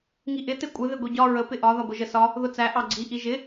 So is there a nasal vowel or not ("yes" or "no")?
no